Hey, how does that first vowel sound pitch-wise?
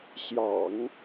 low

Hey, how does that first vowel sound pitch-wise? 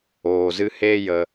low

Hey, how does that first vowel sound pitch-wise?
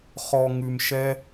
low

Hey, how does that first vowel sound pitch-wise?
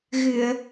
low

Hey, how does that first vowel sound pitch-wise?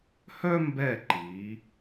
high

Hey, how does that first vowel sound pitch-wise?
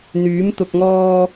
rising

